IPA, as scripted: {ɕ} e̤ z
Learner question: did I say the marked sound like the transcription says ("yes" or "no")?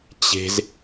no